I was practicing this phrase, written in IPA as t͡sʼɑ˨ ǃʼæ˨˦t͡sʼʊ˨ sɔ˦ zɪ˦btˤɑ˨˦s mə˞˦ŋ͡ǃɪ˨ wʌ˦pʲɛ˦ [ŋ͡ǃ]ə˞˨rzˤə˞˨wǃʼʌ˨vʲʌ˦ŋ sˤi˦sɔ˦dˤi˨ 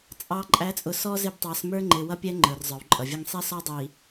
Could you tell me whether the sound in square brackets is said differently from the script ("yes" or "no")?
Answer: no